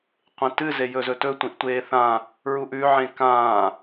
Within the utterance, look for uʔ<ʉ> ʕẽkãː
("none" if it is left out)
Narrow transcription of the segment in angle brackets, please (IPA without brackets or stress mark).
ʉ